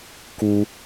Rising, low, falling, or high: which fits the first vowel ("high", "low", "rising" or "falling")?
high